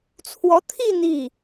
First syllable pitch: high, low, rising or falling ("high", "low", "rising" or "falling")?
rising